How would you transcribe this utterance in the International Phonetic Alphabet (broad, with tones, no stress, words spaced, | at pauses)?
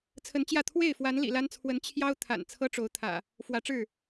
t͡sʰə˨˦nt͡ɕjä˥˨ t̪ʰwe˥˨ɪ̯fwa˨˦n lḭ˨˩la˦nt͡sʰwə˨˦n t͡ɕʰjɑ˦ʊ̯ t̪ʰa̰˨˩n t͡sʰɤ˦ʈ͡ʂo˨˦ʊ̯t̪ʰä̰˨˩ | fwä˨˦ʈ͡ʂɻ̩˥˨